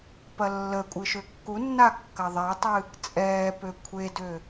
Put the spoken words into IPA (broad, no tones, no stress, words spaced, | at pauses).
pɐlːəkʷʼɨ ʃøkːunːa kːɐðˤɛtˤɨ | t͡sʼɛːpø kʷʰedø